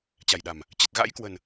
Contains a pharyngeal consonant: no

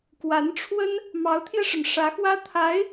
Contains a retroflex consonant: yes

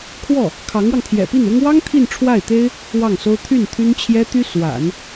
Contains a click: no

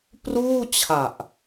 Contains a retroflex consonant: no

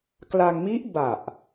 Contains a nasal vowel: no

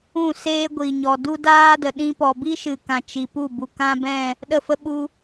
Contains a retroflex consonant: no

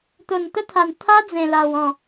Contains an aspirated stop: yes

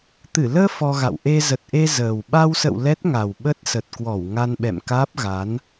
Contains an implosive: yes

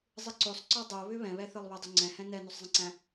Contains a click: yes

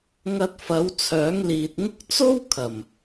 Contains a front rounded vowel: yes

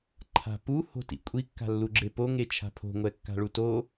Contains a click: yes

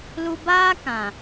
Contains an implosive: no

